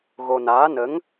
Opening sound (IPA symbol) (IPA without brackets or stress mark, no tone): ɣ